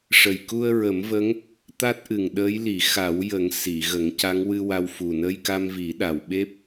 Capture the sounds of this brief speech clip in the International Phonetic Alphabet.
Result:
ʂ ə˨˩ j k u˧ ə̯ ɹ ə˨˩˦ m v ə˧˥ ŋ | t̪ a˦˥ t̚ ʔ ɨ˨˩ ŋ ɗ əː˧˥ j l i˨˩˦ x a˨˩˦ w j ə˨˩˦ ŋ s i˨˩˨ ɣ ə˨˩˦ ŋ c a˧˥ ŋ w ɨ˧ w a˧ w f u˨˩ n ə˧ j k a˧ m v i˨˩˦ ɗ a˨˩ w ɓ e˦˥ p̚

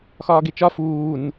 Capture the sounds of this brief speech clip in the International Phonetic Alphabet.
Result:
x ɒː ɡ e t͡ʃ ɒ f uː n

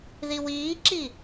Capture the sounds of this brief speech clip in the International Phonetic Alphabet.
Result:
ð i w iː ǁ i

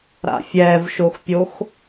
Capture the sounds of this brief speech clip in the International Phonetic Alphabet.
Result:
ɾ a̰ fʲ ɛ v ʃ o x pʲ o x

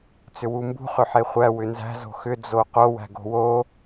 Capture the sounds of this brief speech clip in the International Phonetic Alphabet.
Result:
t͡s ʏ w u m b ṳ χ ʏ ħ e χʷ æ w ʏ n z æ̤ z o̤ x ʏ d͡z o q o w æ̤ ɡ o̤ w o

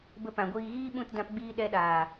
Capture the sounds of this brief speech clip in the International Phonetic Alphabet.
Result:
b ə˧ p ã˨ ɡʷ iː˧ ɣ iː˦ ɓ ũ˦˨ t d ã˧ p ɡ͡b iː˧ ɗ ɛ˧ ɗ aː˨

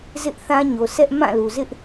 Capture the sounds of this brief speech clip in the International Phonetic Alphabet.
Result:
z ɪ˦ ʔ θ ã˦ ɲ o˨ s ɛ˦ ʔ m ã˦˨ l u˨ z ɪ˦ ʔ

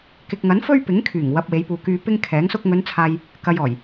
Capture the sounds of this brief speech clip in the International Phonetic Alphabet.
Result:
k ɪ˨ k̚ ŋ ɐ˨˥ n f ɵ˥ ɥ p ɪ˨˥ ŋ kʰ yː˨˩ ŋ w ɐ˨ p̚ w e˨˧ j p uː˨ k yː˨ p ɪ˥ ŋ kʰ ɛː˨˥ ŋ s ʊ˥ k̚ ŋ ɵ˨˧ n t͡sʰ aː˨ j | k ɐ˨ j ɔː˨˩ j

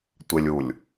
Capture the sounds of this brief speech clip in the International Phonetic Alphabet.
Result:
tʷ ɪ lʲ u lʲ

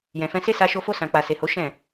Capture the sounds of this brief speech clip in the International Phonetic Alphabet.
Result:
j ɛ̃˨ f ɛ̃˧ s e˦ s a˧ ʃ o˧ f o˧ s ã˨ k͡p a˨ s e˨ h o˨˦ ʃ ɛ̃˦˨

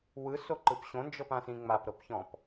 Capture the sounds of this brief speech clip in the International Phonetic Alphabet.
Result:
w ɯ s o ǃ ɯ p ɕ õ n d͡ʒ ɤ p ã s ĩ ŋ͡m a p ɾ ɤ p ç ɔ̃ p

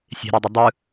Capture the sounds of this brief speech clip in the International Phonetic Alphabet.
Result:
sʲ e̤ ɾ e dˤ ɪ dˤ ɯ

